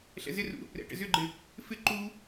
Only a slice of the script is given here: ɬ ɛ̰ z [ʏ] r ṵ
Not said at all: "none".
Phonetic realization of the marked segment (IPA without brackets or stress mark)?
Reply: ɪ